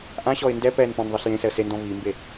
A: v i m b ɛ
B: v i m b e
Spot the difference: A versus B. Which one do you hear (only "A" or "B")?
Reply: B